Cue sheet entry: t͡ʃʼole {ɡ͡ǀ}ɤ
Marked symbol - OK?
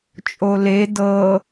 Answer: no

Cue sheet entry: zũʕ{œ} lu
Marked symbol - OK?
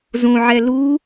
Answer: no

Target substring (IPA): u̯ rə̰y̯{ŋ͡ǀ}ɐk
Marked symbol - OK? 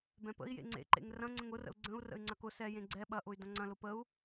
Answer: yes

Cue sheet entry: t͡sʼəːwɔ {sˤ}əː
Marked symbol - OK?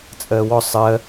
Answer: yes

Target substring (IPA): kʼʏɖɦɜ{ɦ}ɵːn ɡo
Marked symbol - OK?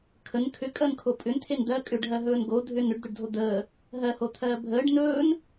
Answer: yes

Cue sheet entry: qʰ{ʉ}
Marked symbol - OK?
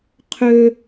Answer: no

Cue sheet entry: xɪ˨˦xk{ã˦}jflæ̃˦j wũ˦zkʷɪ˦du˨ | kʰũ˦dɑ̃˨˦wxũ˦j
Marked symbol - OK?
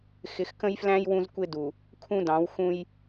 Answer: no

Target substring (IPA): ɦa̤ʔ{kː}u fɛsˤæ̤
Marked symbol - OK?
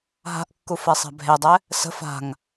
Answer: yes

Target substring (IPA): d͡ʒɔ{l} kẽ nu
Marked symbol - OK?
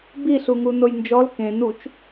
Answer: yes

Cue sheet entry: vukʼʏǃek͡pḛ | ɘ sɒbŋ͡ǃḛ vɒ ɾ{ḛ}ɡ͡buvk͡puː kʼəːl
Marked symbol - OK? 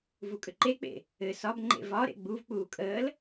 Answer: yes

